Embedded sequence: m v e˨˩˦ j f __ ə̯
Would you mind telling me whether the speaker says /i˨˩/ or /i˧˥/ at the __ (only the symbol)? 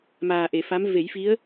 i˧˥